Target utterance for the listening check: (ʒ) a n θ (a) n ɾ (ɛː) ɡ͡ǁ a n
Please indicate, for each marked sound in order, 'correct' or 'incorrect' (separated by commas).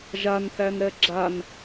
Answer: correct, incorrect, incorrect